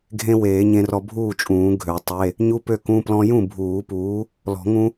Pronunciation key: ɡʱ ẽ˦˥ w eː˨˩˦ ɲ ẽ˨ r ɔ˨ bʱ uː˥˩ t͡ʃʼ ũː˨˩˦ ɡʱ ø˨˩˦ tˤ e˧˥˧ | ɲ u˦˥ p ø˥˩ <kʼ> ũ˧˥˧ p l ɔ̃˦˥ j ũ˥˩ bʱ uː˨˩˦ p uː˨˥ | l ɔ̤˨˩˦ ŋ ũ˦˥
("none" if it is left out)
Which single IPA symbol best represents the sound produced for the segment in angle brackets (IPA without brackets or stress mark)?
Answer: k